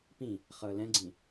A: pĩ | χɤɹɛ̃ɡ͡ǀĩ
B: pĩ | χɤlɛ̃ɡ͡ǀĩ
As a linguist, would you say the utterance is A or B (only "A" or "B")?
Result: B